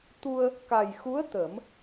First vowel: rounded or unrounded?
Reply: rounded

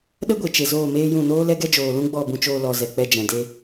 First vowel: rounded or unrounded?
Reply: unrounded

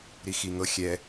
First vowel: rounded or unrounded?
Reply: unrounded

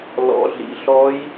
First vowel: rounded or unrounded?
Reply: rounded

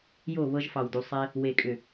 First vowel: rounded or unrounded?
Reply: rounded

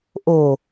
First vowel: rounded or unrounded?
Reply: rounded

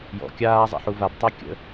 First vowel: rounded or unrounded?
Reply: rounded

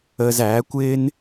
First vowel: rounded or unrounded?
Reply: unrounded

